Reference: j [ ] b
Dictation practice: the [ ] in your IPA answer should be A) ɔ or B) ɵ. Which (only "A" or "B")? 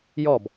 A